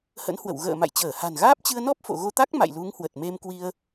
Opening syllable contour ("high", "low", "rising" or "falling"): rising